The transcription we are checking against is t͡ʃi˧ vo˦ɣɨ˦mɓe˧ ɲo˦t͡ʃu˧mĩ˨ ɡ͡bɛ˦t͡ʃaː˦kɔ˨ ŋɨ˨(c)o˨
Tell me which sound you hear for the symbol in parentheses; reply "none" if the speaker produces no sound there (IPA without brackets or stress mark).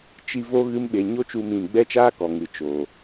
t͡ʃ